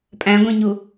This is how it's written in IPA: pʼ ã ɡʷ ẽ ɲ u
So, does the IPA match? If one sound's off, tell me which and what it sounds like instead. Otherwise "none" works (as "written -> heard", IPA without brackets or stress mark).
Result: ã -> æ̃